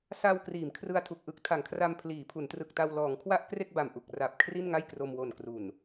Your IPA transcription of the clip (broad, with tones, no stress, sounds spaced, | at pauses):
s a˧ w k r iː˩˦ m kʰ r ɯ˧ a̯ tʰ u˨˩ k̚ ʔ ɯ˦˥ k̚ tʰ a˩˦ ŋ kʰ r a˧ m pʰ l iː˩˦ pʰ u˩˦ n t r ɯ˨˩ k̚ t a˧ w l ɔː˩˦ ŋ kʰ w a˥˩ ʔ k r e˥˩ k̚ b a˨˩ m ʔ u˨˩ k̚ r a˨˩ p̚ kʰ r i˥˩ n ŋ a˥˩ j k r o˧ m w o˨˩ n k r u˨˩ n